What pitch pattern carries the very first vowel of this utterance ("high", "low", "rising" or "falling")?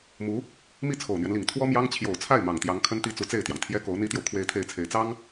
rising